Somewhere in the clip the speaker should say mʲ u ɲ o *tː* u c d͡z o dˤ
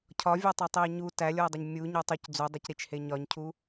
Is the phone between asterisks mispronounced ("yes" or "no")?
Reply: yes